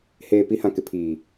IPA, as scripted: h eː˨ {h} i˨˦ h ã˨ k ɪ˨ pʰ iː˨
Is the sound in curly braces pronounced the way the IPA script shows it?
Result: no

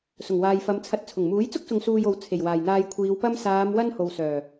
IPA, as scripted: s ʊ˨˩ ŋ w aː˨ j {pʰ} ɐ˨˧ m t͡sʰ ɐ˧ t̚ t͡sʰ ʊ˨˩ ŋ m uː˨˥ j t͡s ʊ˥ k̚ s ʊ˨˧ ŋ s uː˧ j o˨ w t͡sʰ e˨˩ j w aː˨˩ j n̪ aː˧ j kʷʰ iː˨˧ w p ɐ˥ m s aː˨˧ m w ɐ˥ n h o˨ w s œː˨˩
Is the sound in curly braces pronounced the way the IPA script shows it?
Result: no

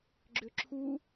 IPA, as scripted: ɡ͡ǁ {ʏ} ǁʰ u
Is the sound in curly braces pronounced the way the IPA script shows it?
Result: yes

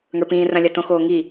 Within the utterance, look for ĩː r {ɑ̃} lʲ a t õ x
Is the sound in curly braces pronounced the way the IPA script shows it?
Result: no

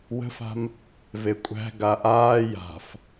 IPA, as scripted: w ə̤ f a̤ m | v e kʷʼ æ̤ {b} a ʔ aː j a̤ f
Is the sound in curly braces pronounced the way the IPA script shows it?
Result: no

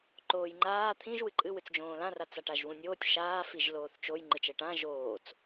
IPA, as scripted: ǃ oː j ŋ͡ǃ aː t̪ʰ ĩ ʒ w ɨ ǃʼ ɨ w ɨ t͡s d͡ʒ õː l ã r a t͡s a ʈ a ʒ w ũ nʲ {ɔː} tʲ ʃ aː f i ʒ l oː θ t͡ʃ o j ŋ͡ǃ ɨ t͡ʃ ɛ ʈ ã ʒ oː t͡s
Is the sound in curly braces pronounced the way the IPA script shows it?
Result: no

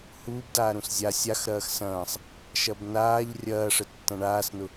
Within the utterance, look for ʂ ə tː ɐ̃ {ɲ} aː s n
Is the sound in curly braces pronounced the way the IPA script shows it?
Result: no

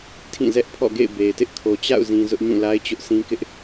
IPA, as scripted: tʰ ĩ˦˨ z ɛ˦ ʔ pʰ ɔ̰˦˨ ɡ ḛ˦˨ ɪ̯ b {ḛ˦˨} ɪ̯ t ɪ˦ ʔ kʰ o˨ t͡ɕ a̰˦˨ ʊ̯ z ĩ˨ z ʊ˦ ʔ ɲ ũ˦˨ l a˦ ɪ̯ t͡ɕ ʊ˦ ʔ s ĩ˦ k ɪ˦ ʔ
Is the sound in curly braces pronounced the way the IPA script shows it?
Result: no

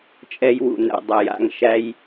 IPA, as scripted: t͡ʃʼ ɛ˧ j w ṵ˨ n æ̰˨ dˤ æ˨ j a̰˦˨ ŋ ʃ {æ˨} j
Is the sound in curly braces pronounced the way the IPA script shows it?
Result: no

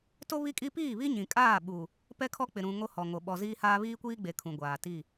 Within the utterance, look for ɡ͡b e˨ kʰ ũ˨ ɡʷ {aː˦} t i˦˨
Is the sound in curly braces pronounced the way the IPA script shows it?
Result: no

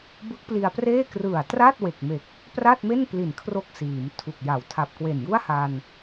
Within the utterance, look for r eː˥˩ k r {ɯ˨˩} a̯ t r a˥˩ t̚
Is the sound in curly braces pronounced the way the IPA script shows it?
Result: yes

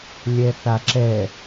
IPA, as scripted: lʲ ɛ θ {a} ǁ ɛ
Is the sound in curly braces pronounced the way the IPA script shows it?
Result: yes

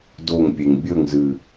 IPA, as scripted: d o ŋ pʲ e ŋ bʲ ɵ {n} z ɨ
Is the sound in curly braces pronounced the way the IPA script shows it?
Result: no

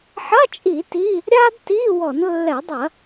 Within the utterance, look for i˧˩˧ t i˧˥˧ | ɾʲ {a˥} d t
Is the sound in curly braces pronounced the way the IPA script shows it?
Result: yes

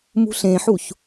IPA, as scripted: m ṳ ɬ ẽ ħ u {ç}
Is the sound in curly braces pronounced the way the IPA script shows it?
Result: yes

